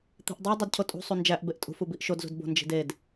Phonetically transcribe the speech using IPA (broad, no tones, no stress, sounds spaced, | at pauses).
t̪ i̤ ʔ dˤ i dˤ u d cʰ o tʼ ṳ sˤ u n d͡ʒ æ ʔ b e ʔ tʼ ṳ f u b i ʔ ʃ o d z ṳ d b o̤ n d͡ʒ i̤ d e d